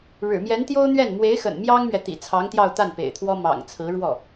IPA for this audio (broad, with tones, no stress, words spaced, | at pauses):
ɻɻ̩˨˩mjɛ˧˥nt̪jo˥ʊ̯n̪ɥɛ˥˩n mwe˧˥ɪ̯xə̰˨˩n mjɑ˥ŋmɥɛ˨t̪ḭ˨˩ t͡sʰɑ˧˥ŋt̪jɑ˥˧ʊ̯t̪a˥˩n pḛ˨˩ɪ̯t̪ʰwɔ˥ mɑ̰˨˩ŋ t͡sʰɹ̩˧˥ɻwɔ˥˩